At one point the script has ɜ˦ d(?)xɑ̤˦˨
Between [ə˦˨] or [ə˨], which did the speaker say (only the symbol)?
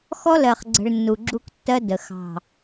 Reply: ə˨